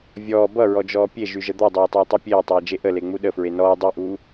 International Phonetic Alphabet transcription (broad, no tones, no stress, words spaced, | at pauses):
vʲɔː bʌɹɔd͡ʒɔː pʲeʒyʒə d̪ɔdˤeːtˤeːtˤy pʲeːtˤeːd͡ʒe ʔəleŋ͡mu ɗəfɹe nɔː dˤyʔuː